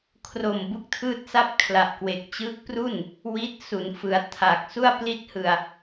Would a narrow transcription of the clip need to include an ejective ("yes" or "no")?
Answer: no